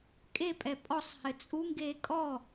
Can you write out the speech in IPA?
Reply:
kʼepʼɛ pʼɔsˤhɘ t͡sʼuŋɡeː kʼɔ

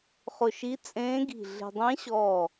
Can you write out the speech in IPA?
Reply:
χʊ˧˩ʃi˧˥t͡sʼẽː˧˥ɡi̤˧˩ ɮe̤˧ dˤẽ˧˥ɕɔː˧˩

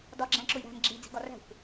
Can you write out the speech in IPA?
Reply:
dɒɡ͡ǁæ̃ ǁʊjɾæ̤m ɡ͡ǁi d͡zi̤ɡɒræ̤xʷ

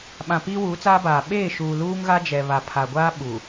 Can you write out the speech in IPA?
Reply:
ɓã˨ piː˦wuː˨˦t͡saː˦baː˨ ɓeː˦˨ʃuː˨ luː˦ŋɣa˦d͡ʒɛ˨ βa˨pʰa˨ɡʷaː˦ ɓu˨

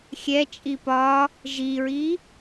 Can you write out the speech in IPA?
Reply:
xʲɛt͡ʃʼi pɒ | ʒiɹi

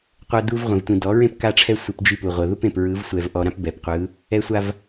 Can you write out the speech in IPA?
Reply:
qʷɤ˦du˦v ʁʷẽ˨vtʷĩ˨dɔ˨˦ɹẽ˦p ka˦ʈ͡ʂʰɛ˦ sʷe˦pd͡ʒi˦pu˨ʁʷɤ˨ ðu˦pẽ˨pɹɯ˨˦v sʷɛ˨vʔɔ˨ɾã˦p bɛ˨pqʷɯ˨˦ | ɛ˦sʷa˦v

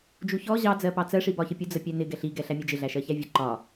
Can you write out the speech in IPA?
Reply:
d͡ʒuçɔ ʑɑ d͡zɜpɑt͡sɜ ʂibɒçəpʲu d͡zəpʲænɪ ɡɛɬi ɡɛɬæmʲɛd͡ʒɪ ɮæʃɜçævʲə ǃɒ

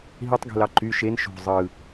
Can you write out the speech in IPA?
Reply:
ɦitˤɡe̤lɑ ǃy ʃen ʃo̤ zˤɯ

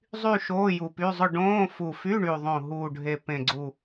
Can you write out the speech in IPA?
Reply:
zˤy˥˧ ʃoː˧˥˧ju˨˩py˧˥˧zˤʊ˥˧ ɖõː˧˥˧ fu˨˩fy˧˥˧ɳy˨˩ðˤõ˨˩ ɦuː˨˩ɖʱe˨˩ pẽ˨˩ɡ͡ǀu˨˩

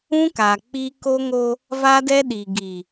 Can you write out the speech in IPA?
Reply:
ũ˦ka˨k͡pi˦ ko˦ŋo˦ | va˦dɛ˦ɗi˨ɡi˨

